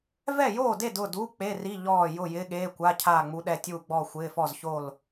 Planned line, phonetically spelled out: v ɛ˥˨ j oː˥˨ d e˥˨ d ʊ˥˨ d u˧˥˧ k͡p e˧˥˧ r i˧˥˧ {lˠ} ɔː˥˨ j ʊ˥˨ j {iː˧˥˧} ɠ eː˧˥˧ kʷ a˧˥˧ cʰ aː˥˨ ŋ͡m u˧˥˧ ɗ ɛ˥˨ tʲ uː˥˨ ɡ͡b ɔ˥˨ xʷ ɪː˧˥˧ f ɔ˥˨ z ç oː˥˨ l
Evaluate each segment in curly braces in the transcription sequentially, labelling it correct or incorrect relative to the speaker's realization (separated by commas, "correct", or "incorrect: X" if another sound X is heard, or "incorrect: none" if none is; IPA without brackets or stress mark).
incorrect: ʎ, incorrect: ɪː˧˥˧